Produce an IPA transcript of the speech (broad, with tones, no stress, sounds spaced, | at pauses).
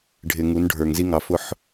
ɖʱ ɪ˨ ŋ u˨˦ n ɖʱ ə˞˨ ŋ z i˦ ŋ ɑ˨ f ʊ˦ ħ